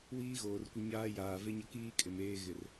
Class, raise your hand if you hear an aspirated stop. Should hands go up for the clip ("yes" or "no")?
no